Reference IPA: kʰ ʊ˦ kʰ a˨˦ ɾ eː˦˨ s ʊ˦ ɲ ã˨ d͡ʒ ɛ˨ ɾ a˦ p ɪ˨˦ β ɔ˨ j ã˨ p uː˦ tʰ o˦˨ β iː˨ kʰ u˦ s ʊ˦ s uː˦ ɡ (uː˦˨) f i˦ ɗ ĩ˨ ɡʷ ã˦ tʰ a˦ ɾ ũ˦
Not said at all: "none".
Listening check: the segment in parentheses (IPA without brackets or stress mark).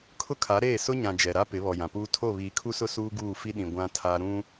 uː˦˨